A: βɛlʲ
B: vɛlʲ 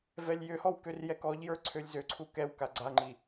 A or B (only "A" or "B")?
B